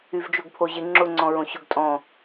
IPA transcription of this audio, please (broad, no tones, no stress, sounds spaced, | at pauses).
y v d͡ʒ o ɡ pʰ o ʑ ɪ ŋ͡ǁ ʊ ŋ͡ǀ ɔ̃ ɹ õ ɕ ʊ ɡ tʼ ɔ̃